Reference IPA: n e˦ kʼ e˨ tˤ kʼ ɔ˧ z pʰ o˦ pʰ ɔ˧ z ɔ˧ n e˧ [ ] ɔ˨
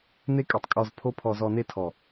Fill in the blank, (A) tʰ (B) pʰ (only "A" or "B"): A